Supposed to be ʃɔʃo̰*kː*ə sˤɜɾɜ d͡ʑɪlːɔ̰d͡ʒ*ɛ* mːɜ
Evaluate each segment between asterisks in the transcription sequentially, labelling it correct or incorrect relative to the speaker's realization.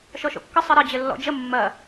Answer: correct, incorrect

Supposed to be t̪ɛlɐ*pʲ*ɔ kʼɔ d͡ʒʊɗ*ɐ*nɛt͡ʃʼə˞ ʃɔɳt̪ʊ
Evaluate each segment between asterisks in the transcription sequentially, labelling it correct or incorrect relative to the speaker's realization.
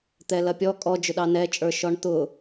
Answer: correct, incorrect

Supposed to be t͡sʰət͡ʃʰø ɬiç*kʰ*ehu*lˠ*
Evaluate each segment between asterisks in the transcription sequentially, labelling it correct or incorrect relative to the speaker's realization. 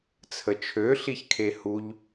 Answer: correct, incorrect

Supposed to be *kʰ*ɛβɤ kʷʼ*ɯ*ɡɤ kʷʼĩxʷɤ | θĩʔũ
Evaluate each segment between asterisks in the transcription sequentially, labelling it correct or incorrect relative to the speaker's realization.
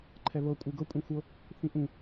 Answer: incorrect, correct

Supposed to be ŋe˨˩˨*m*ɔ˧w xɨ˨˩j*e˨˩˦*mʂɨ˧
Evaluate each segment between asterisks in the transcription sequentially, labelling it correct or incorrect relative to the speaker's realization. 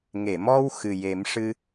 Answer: correct, correct

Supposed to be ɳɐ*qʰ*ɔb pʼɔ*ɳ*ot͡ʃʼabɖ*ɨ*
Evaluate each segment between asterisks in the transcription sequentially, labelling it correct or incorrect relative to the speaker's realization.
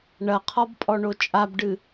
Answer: correct, correct, correct

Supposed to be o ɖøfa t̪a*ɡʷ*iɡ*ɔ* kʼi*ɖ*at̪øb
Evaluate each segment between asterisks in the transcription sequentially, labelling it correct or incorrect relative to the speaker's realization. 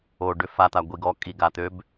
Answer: correct, correct, incorrect

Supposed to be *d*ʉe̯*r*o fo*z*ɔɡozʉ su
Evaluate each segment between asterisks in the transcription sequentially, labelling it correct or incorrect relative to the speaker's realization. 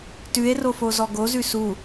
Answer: incorrect, correct, correct

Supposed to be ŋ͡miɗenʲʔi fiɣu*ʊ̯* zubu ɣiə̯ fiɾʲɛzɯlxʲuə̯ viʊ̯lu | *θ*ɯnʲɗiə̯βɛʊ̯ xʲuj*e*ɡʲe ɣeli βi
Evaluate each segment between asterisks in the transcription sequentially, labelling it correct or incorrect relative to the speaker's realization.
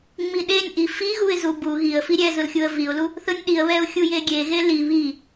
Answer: incorrect, correct, correct

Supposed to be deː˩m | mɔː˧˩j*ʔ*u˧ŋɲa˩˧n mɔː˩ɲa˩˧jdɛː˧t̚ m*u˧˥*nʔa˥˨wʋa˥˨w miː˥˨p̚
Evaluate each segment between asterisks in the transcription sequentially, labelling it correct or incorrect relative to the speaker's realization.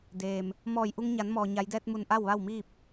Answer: correct, incorrect

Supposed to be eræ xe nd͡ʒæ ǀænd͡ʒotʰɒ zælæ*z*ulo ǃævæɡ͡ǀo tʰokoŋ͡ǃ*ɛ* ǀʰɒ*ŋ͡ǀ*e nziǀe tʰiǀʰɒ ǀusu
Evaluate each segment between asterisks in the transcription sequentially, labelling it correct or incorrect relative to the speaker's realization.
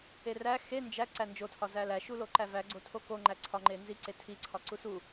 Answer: incorrect, incorrect, incorrect

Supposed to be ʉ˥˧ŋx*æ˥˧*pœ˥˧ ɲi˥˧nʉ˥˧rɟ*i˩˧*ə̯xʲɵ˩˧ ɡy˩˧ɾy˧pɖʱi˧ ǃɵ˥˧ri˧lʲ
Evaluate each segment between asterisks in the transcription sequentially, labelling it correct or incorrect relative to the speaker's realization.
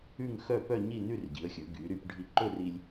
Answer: incorrect, correct

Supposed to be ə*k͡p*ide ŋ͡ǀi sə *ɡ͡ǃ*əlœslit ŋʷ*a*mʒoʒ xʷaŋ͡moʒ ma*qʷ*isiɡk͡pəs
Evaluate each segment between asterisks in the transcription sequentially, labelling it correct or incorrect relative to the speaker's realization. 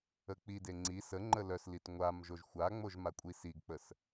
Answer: correct, incorrect, correct, incorrect

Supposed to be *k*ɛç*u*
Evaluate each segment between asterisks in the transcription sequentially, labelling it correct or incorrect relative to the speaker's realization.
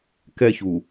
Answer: correct, correct

